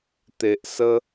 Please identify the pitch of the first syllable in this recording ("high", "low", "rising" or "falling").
low